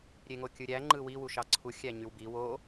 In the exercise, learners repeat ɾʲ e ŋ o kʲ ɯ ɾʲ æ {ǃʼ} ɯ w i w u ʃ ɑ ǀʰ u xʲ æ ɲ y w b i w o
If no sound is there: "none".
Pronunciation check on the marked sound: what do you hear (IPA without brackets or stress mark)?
ŋ͡ǃ